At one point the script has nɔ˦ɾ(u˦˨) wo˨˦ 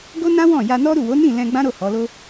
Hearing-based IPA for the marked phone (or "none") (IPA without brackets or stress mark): u˦˨